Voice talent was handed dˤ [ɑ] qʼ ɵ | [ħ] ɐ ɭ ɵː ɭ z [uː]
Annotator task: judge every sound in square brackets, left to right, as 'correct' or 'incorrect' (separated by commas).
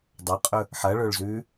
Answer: incorrect, correct, incorrect